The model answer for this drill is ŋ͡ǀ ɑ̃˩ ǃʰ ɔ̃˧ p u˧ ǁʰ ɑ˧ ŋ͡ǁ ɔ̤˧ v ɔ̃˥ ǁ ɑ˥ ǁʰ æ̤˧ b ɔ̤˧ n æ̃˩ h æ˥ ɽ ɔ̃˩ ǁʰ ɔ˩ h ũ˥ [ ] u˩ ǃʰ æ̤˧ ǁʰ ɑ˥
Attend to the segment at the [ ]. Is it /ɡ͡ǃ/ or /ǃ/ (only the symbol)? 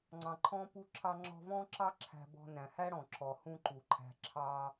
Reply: ǃ